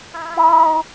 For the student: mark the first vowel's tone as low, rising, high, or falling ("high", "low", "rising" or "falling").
high